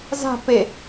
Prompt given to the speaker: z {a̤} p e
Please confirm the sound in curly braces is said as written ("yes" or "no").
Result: yes